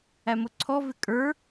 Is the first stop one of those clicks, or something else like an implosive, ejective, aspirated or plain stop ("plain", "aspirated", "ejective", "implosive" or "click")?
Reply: click